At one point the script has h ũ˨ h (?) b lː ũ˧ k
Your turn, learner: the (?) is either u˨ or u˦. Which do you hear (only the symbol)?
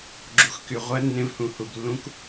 u˨